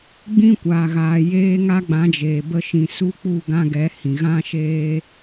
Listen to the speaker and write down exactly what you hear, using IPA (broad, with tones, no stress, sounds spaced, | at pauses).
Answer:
ɡ͡b ĩ˦ kʷ aː˨ ɣ aː˨ j eː˦ ŋ a˦ ɡ͡b ã˨˦ d͡ʒ eː˨ b ə˧ ʃ ĩ˨ s u˦ k͡p u˦˨ ɡ ã˦ ɡ ɛ˨˦ h ĩ˨ ɣ ã˦ ʃ eː˦